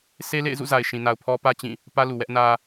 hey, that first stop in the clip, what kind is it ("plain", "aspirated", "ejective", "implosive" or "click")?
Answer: aspirated